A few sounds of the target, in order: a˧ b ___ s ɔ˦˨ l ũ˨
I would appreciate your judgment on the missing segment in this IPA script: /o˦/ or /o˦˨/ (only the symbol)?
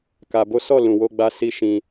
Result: o˦